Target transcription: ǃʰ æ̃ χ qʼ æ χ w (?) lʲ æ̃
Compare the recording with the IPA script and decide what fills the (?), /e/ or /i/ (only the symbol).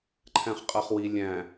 i